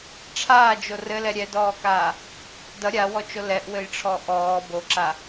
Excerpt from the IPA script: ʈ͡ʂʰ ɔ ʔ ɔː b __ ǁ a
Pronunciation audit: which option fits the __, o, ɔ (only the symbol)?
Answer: o